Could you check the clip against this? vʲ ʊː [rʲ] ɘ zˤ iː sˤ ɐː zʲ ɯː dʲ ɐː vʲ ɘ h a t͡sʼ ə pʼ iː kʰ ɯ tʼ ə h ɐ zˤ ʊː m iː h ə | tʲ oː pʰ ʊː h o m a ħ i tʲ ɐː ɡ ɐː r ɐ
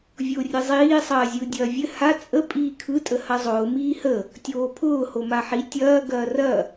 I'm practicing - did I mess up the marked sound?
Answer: no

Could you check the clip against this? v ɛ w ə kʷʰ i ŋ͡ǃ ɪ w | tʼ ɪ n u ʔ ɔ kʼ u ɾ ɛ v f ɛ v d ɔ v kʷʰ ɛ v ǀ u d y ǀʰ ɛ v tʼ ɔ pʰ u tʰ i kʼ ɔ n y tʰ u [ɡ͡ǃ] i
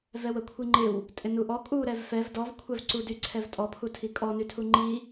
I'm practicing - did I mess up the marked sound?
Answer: yes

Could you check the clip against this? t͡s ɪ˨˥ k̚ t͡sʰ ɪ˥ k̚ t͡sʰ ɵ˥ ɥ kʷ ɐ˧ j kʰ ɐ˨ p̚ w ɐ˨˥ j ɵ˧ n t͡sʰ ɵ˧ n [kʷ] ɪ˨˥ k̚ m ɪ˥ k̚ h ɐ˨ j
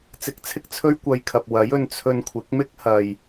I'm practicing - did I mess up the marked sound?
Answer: yes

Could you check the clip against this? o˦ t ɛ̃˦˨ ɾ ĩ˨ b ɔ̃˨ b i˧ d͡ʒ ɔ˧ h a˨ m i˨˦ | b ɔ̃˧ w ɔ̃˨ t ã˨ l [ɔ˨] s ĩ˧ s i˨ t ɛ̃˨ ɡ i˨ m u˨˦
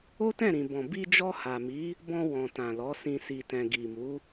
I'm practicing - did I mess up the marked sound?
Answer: yes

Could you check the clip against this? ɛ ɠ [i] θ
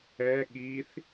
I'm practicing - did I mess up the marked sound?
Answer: no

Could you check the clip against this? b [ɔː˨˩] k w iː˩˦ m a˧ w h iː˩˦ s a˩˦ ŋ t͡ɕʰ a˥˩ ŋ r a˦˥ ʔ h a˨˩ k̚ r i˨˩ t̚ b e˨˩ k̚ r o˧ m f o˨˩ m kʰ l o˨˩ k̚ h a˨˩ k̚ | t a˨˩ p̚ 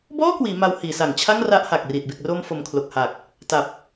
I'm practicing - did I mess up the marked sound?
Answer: yes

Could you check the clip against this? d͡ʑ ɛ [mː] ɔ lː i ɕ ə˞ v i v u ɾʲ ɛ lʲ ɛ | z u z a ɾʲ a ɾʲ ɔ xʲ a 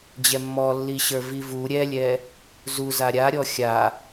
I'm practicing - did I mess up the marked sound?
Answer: no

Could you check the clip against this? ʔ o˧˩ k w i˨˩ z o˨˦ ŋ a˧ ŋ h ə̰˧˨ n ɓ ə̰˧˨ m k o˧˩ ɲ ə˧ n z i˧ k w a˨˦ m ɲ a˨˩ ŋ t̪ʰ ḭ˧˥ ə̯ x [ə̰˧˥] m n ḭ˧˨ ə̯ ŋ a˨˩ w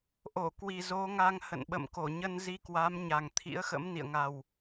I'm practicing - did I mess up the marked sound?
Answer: no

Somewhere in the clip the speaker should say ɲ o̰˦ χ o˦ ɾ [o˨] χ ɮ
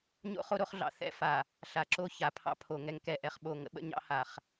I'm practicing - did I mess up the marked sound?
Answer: yes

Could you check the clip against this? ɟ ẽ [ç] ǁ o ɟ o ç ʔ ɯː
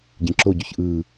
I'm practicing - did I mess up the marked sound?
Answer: yes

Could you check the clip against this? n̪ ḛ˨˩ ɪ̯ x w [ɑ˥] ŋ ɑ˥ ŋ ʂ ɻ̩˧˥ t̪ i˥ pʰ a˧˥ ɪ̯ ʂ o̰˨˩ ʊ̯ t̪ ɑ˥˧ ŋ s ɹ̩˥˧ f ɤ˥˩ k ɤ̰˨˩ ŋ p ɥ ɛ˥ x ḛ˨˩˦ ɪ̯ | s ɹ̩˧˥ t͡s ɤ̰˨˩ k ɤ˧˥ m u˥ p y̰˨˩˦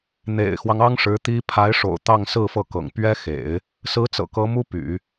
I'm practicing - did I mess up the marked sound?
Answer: yes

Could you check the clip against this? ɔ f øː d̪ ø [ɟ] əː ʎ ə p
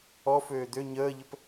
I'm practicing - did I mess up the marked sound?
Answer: yes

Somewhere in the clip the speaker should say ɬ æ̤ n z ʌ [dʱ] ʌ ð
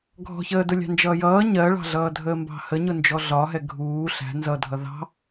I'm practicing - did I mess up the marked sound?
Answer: no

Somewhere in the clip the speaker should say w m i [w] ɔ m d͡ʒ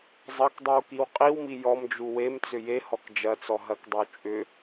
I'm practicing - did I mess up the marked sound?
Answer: yes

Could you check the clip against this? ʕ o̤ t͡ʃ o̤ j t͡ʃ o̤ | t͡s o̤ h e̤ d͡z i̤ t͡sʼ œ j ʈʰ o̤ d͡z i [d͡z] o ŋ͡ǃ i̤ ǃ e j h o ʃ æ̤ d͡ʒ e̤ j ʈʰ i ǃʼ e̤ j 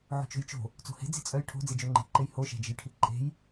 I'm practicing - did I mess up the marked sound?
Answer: yes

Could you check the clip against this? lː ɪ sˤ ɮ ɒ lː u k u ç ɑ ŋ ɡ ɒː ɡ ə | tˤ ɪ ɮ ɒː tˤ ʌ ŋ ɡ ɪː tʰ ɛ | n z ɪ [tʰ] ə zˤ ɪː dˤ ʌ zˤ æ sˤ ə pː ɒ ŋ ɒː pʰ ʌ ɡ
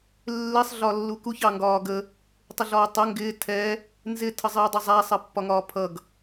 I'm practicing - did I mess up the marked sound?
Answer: no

